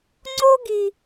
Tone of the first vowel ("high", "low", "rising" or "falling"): high